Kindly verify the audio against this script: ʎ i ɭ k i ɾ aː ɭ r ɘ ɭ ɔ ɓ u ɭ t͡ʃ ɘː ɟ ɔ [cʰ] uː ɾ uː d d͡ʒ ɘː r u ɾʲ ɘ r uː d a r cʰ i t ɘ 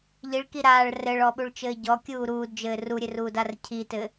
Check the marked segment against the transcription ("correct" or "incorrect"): incorrect